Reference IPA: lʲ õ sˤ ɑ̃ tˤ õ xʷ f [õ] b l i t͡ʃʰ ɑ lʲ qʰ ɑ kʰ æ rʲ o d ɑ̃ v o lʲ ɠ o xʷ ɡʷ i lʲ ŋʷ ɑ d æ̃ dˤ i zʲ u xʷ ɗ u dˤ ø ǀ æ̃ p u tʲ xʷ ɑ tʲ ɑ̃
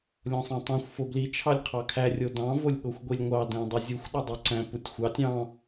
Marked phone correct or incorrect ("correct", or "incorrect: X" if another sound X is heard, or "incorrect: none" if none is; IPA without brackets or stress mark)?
incorrect: o